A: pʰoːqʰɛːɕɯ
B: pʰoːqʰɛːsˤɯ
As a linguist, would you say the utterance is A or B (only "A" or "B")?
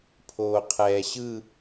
A